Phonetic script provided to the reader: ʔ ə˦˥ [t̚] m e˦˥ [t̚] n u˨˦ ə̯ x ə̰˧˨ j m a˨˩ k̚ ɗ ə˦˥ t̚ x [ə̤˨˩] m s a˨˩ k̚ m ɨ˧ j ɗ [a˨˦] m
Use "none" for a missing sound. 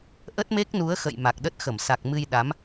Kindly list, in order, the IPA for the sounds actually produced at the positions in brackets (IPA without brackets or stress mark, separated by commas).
t̚, k̚, ə˧˩, a˨˦